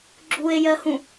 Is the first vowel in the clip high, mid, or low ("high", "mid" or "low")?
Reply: high